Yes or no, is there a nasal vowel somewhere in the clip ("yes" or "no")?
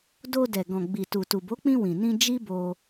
yes